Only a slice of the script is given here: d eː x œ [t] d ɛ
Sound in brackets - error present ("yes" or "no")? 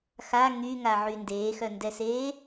yes